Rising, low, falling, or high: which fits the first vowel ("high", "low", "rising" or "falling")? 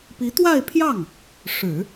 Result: rising